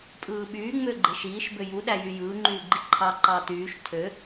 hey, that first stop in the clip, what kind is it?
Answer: ejective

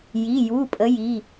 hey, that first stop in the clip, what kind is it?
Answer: ejective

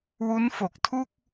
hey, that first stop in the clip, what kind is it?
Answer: plain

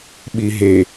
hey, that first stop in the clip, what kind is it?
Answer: implosive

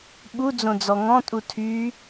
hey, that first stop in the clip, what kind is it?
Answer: implosive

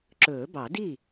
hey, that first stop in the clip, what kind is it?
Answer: click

